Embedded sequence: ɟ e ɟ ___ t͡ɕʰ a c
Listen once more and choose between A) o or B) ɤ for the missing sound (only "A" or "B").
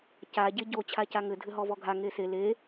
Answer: A